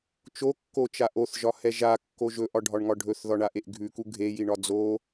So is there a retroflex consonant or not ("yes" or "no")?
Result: yes